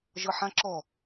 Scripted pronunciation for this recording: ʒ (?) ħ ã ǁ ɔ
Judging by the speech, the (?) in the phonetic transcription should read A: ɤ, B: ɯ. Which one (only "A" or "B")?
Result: A